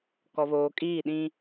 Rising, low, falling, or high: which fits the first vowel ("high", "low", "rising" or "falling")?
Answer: low